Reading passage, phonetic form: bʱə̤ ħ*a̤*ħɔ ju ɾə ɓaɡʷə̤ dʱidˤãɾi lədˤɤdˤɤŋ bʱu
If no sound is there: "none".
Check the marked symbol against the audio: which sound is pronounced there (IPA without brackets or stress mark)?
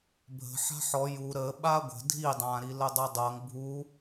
a̤